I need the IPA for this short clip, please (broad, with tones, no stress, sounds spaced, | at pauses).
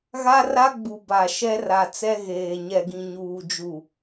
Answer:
ɣ a˦ r a˦ ɡ͡b u˨ b a˨ ʃ ɛ˦ r a˨ t͡s ɛ˦ ɣ eː˨ ɲ ɛ˨ ɡ ĩ˨ ɲ uː˨ d͡ʒ u˨